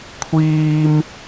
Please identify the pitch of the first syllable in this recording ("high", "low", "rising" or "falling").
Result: high